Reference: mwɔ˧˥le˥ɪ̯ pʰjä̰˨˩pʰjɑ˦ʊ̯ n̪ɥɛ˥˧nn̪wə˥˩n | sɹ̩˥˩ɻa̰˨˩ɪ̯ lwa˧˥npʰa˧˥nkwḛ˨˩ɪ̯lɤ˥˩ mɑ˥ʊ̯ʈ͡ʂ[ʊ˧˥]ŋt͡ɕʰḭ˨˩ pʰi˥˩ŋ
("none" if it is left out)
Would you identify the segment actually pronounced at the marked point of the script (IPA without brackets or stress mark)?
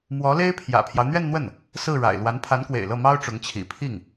ʊ˧˥